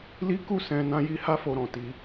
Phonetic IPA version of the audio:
l i˦ k u˦˨ s ɛ̃˧ n ã˦ j i˦ h a˦ f o˧ ɾ ɔ̃˨ t i˧

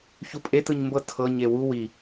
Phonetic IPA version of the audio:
ç u pʼ e t ɯ ɲ m b ɤ tʰ ɤ ɲ e w u w i

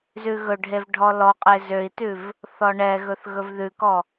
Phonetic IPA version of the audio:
z ʉ ɣ ɵ ɖʱ e v ɖʱ ɔ l ɔ qʼ e z ø i̯ t ʉ v | θ ɔ ɳ ɛ ɣ ɵ θ ɣ ɵ v ð ʉ k ɔ

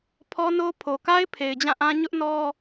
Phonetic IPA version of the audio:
pʰ ɔ˦ n o˦ pʰ o˨ k a˦ ɪ̯ pʰ e˨ ɪ̯ d͡ʑ ã˦˨ ʔ ã˦ ɲ ʊ˦ ʔ n ɔ˦

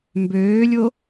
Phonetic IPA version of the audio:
m b øː lʲ o

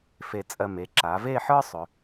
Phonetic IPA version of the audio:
f e˧˩ t͡sʼ ɜ˧˩ m e˩˧ ǁ a˩˧ v e˥˧ ħ ə˞˥ sˤ ʏ˩˧

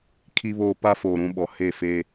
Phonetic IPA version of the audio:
kʰ i˦ β oː˦ p a˦ f oː˨ ɾ ũ˦ ɓ ɔ˨ h e˦˨ f e˦

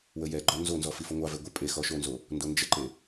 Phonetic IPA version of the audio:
w ə j ɛ ɡ͡ǃ ɔ n z o n z ɔ f i f o ŋʷ ɑ v ɛ ɡʷ ə pʼ e x ɔ ʃ o n z o | n d o n d͡ʒ ə ǃ e

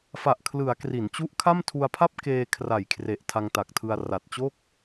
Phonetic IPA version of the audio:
f a˨˩ ʔ kʰ l ɯ˩˦ a̯ k r i˩˦ n t͡ɕ u˦˥ ʔ kʰ a˥˩ m tʰ u˧ a̯ pʰ a˥˩ p̚ k eː˧ kʰ r a˨˩ j kʰ r e˨˩ ʔ tʰ a˧ ŋ t a˨˩ k̚ tʰ ɯ˧ a̯ r a˨˩ t̚ t͡ɕ o˥˩ k̚

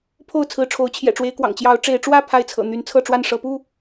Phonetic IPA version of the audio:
pʰ o˥˨ ʊ̯ t͡sʰ ɹ̩˨˦ ʈ͡ʂʰ o˨˦ ʊ̯ t͡ɕʰ j ɛ̰˨˩ ʈ͡ʂ w e˨˦ ɪ̯ k w ɑ̰˨˩ ŋ t͡ɕ j ɑ˨˦ ʊ̯ ʈ͡ʂ e˨˦ ɪ̯ ʈ͡ʂ w ä˥˨ pʰ a˥˨ ɪ̯ t͡sʰ ɤ̰˨˩ n̪ y˨˦ n t͡sʰ ɤ˥˨ ʈ͡ʂ w a˥˨ n ʂ ɤ˨˦ p u˥˨

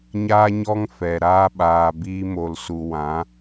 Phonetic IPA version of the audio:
ɲ aː˦ ɲ ɔ˦ ŋ f ɛ˨ ɾ aː˧ ɓ aː˨ b iː˦ m o˧ l s u˧ w ã˨˦

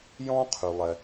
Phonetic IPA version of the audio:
j ɔ̃˥ qʰ y˩ lˠ ɛ˩

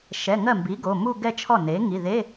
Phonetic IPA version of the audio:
ʃ ɛ˩˧˩ ŋ ɜ˥˩ m b i˩˥ ɡ o˩˧˩ m u˥˧ ɡ ɛ˥˧ t͡ʃʰ ɔ˥˩ n e˩˥ ŋ i˩˧˩ ð e˧˥˧

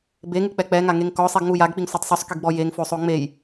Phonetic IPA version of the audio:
b e ŋ ɯ k͡p ɛ k͡p ɛ ŋ a ŋ e ŋ k ɔ sˤ i ɡ ŋ u j a ɡ k͡p i ŋ sʷ ɤ tˤ sˤ u sˤ k i ɡ ɡ͡b ɔ j e ŋ f o sˤ o ŋ͡m e j

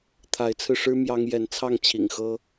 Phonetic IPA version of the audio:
t̪ʰ a˨˦ ɪ̯ t͡sʰ ɹ̩˧ ʂ ɻ̩˦ m j ɑ˦ ŋ j ɛ˨˦ n t͡sʰ ɑ˥˨ ŋ t͡ɕʰ ḭ˨˩ ŋ x ɤ˦

